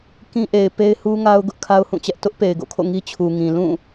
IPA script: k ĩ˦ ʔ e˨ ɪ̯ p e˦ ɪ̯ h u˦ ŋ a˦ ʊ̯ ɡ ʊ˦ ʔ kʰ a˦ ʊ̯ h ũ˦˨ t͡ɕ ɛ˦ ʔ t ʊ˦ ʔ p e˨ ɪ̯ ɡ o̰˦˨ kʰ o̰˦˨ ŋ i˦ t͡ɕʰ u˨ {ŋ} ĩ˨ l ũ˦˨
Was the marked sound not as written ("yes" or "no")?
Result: no